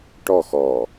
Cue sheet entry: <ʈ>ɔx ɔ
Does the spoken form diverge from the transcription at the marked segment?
no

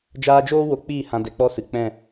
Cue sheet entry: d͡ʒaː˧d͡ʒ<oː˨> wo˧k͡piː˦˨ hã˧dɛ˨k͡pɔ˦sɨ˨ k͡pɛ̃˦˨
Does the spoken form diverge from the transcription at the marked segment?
yes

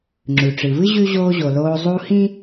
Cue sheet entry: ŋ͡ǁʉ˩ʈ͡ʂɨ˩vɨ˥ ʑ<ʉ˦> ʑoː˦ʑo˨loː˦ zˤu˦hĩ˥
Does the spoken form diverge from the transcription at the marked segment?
no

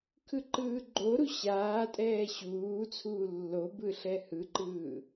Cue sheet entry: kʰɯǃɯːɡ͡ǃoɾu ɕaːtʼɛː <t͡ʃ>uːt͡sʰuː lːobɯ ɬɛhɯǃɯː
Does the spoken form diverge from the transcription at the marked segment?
yes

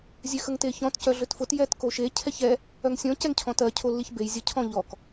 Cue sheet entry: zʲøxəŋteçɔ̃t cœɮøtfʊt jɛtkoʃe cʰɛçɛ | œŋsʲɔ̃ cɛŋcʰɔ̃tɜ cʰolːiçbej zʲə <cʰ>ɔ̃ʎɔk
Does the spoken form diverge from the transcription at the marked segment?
no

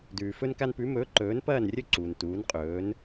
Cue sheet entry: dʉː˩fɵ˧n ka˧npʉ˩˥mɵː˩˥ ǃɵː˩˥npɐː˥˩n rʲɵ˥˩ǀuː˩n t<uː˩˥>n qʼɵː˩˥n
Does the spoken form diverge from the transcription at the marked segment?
no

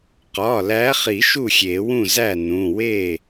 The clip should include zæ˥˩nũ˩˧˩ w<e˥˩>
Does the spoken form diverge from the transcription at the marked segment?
no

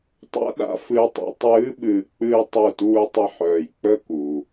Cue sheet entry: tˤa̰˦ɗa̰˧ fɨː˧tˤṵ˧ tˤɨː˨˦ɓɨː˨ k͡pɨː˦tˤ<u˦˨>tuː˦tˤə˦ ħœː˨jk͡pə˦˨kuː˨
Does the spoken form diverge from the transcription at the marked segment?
no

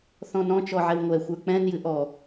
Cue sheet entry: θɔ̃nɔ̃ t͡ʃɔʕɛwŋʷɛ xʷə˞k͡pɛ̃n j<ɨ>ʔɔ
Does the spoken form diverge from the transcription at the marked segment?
no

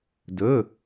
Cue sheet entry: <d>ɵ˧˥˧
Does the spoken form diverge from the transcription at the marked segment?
no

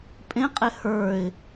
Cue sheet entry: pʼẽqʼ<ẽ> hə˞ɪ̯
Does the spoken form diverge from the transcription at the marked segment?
yes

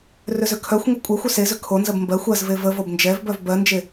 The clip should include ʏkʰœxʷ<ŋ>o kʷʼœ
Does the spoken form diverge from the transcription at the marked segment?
no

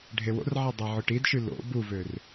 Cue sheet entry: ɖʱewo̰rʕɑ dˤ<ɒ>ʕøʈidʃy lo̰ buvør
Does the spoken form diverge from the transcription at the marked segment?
yes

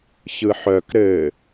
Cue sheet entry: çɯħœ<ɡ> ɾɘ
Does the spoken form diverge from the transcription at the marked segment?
yes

